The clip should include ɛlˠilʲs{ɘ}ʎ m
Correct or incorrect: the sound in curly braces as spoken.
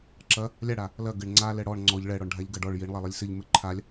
correct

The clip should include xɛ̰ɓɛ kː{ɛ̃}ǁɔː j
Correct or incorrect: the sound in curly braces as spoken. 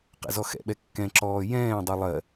correct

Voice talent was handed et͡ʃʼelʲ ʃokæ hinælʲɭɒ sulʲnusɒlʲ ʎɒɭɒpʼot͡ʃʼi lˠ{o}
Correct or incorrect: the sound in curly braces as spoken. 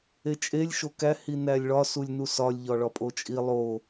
correct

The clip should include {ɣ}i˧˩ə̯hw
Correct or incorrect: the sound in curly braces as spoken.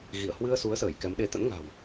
correct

